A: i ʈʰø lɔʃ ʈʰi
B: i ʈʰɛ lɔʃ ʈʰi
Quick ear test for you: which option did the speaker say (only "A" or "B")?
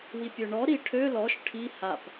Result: A